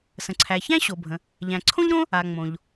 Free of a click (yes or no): no